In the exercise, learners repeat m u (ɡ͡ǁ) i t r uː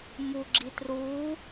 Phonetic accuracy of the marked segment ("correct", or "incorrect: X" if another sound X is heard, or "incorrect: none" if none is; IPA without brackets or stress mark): correct